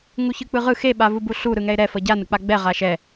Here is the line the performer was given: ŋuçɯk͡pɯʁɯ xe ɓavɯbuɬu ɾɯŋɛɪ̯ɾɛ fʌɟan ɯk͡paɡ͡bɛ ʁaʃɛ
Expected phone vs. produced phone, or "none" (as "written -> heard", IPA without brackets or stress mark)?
none